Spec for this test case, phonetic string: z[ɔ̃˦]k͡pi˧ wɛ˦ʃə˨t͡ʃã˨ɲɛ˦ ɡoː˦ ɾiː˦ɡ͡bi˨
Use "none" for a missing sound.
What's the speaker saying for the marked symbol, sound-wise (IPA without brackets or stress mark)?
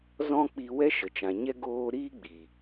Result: ɔ̃˦